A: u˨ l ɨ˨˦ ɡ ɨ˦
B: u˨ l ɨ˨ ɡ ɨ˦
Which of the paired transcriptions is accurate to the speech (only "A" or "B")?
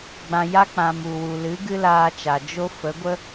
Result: A